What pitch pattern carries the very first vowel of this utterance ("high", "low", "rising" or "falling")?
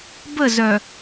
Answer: falling